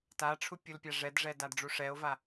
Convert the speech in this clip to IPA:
taʈ͡ʂʰu pʲulpʲaʐɛdʐɛ dadɖ͡ʐuʂɛo̯va

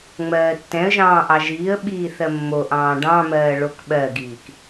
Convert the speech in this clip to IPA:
ŋ͡mɜːtːɛ̃ə̯ʒɑ̃ː ʔɑʒiːə̯ɓiː θɜmːoʔɑ̃ː ɖɑ̃mɜː ɭokɓɜɡiːk

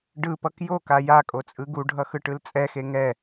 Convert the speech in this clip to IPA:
ɖɯpʌk joka ja kʼot͡sʼɯɡuɖʱʌ xɯʈɯlt͡sʼɛxe ŋɛ

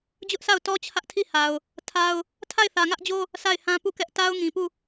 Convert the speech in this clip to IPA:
d͡ʑʊ˦ʔsʰa˦˨ʊ̯tɔ˦ t͡ɕʰä˦ʔtʰi˦˨ha˨ʊ̯ | tʰa˦ʊ̯ | tʰa˦˨ɪ̯θä˨ŋä˦ʔd͡ʑo˦ | sʰa˦˨ɪ̯hã˦pu˦˨kɛ˦ʔ ta˦ʊ̯ŋĩ˨pu˦˨

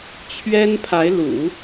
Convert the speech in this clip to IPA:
t͡ɕʰɥɛ˥npʰa˧˥ɪ̯ lṵ˨˩˦

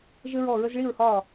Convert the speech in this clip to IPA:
ʒɘ˦ɹɔ˦˨ɹə˦z ɭi˦˨ɹhɒː˦˨

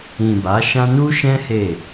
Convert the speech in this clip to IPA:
ĩ˨ ba˨˦ʃã˦ nu˦ʃɛ̃˦ he˦˨

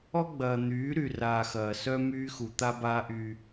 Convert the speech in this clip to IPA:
ɔ˦ɡ͡bɐː˨ n̪yː˨˦ɾy˨ raː˨xɐː˨sœ˦ myː˦xu˨ t̪a˦baː˦ʔy˦

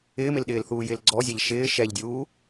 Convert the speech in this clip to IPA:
ɪːmɪlɗɪːl θuːjɪːlɡ͡ǀɔzʲaʎ ʃɪː ʃɛʎdʲuː

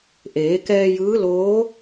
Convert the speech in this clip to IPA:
ʔeː˩˧kɛː˧ jɯː˧˥loː˧˥

